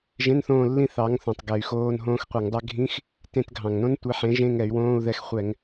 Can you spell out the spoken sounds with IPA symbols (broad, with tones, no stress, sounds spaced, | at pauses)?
ʒ ẽ˧˥˧ n θ õː˦˨ lː ĩ˦˨ θ ɑ˨˥ ŋ θ õ˨˩ tˤ ɡ ɛ˧˩˧ y̯ x oː˧˥˧ n ɦ õː˦˥ x qʷ e˧˩˧ ŋ dˤ ɛ˦˥ ɡʱ ĩ˧˥˧ x | t ẽ˦˨ t ɡʱ ɑ̃˨˩ ŋ n õ˦˥ n tʷ e˨˥ ħ ẽ˨˥ ʒ ẽ˧˥˧ ŋ ɛ˧˩˧ y̯ w õː˧˥˧ u̯ ð ɛ˦˨ x χʷ ɛ˧˩˧ ŋ